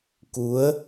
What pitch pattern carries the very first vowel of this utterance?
rising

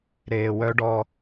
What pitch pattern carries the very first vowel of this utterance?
low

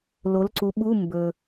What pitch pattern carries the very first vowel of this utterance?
rising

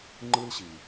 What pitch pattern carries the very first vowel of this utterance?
high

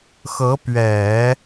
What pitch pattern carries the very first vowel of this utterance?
rising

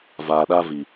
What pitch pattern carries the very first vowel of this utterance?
low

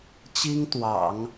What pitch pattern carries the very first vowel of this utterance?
high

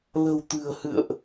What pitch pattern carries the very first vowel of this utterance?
low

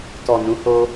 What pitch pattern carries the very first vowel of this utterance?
low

